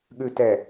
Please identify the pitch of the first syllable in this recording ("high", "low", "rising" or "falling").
low